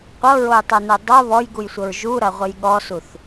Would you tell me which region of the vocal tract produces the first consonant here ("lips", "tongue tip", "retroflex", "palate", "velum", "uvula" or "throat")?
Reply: uvula